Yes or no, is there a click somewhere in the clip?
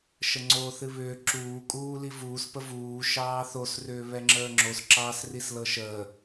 yes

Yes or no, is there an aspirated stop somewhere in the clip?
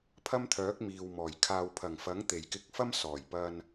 yes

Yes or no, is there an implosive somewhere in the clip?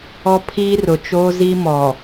no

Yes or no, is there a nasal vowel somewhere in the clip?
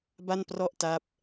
no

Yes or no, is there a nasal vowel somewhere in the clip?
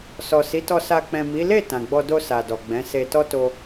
yes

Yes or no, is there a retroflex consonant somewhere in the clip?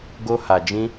no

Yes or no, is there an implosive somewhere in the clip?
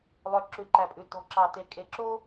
no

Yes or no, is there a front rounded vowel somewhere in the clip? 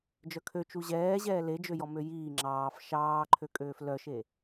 yes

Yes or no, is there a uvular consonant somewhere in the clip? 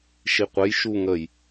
yes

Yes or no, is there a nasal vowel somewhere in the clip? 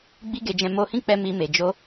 yes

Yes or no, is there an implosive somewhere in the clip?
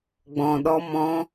yes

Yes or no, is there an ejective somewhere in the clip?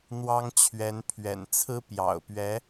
no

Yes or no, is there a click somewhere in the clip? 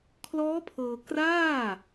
no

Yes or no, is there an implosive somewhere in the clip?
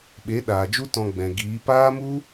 yes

